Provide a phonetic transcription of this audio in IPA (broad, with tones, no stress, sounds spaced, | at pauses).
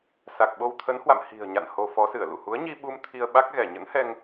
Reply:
s a˨˩ k̚ ɓ o˧ w t̪ʰ ə˨˦ n h w a̰˧˨ m h i̤˨˩ ə̯ ɲ a̰˧˨ n h o˧ f ɔ˨˦ s ɨ˧˩ ə̯ l ṵ˧˨ h u˨˦ ə̯ ɲ i˧ ɓ u˧ m t̪ʰ i˧ ə̯ ɓ a˦˥ k̚ ɣ ɛ˧˩ ɲ ə̰˧˥ n h ɛ˧ ŋ